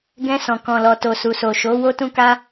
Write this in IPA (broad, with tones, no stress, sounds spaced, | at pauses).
ɡ ɛ̃˧ s ɔ̃˨ k ɔ̃˨ l ɔ˨ t o˨ s u˨ s o˨ ʃ o˨˦ w o˦ t ũ˦ k a˧